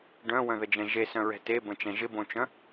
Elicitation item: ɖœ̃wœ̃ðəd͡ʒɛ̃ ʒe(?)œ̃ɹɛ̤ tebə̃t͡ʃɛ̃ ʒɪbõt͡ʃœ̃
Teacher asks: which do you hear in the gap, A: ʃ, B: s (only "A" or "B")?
B